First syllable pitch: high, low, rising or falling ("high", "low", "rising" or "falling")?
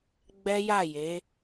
high